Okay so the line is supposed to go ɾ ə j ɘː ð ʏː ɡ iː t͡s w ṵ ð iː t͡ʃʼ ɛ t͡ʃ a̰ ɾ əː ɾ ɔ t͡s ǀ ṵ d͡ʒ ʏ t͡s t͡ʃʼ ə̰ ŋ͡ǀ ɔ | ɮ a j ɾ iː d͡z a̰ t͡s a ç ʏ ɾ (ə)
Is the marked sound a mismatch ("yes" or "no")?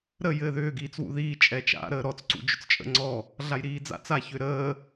yes